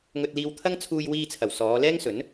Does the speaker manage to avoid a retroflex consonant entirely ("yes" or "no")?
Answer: yes